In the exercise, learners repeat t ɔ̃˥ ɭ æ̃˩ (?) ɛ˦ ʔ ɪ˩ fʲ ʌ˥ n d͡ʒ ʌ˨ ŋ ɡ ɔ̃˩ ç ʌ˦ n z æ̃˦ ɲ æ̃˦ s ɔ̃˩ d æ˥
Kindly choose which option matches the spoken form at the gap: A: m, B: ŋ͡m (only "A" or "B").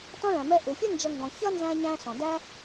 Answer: A